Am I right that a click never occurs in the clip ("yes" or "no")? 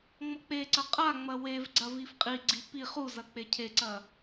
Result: no